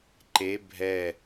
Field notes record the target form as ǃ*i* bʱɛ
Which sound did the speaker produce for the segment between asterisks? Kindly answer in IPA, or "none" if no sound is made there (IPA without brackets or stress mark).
e